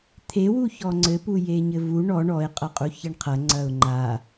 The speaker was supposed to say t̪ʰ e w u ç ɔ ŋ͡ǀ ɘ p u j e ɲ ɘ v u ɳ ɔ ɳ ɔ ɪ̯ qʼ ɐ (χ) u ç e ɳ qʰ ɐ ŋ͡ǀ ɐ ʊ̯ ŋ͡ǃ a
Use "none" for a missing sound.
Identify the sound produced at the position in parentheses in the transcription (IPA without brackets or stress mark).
qʼ